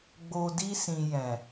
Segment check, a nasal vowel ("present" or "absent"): present